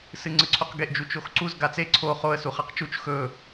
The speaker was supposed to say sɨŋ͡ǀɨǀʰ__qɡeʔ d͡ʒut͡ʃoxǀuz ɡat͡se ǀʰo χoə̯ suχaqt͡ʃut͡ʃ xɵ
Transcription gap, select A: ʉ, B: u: B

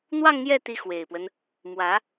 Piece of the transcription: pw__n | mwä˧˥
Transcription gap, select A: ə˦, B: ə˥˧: A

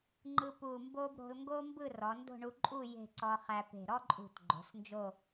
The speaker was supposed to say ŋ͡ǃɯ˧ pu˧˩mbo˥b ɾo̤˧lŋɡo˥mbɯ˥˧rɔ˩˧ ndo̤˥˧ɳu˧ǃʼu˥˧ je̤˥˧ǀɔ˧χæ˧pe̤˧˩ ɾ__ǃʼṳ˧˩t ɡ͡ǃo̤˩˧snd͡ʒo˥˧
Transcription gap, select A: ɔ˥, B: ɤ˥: A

